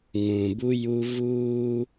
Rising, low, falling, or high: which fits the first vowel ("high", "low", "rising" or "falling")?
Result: low